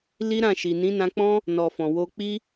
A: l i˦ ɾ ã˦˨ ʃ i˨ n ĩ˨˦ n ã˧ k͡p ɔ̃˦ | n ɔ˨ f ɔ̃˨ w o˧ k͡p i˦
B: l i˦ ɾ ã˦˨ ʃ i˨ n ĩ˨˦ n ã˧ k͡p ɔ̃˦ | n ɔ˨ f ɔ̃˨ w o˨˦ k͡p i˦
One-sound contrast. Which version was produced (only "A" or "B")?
A